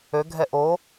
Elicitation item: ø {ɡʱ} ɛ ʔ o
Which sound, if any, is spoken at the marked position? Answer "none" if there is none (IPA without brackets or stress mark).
ɡʱ